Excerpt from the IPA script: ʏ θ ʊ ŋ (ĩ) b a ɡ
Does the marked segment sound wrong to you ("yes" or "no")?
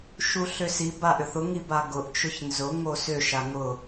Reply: yes